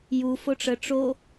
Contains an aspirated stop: no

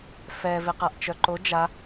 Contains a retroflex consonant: no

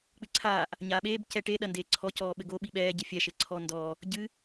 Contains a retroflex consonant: yes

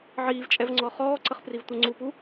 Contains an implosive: no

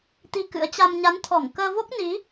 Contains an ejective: no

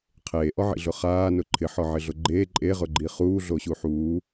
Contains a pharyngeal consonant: yes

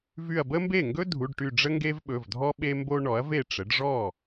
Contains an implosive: yes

